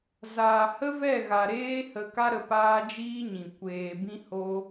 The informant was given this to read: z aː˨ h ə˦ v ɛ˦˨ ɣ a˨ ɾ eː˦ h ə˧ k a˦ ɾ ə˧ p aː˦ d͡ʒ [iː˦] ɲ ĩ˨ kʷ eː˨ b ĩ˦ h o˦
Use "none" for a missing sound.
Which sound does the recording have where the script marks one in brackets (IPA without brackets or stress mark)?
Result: iː˦